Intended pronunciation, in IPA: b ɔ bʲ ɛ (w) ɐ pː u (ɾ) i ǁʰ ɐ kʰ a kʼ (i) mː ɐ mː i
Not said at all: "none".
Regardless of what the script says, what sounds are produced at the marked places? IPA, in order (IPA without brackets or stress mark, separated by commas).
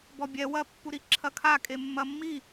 w, ɾ, e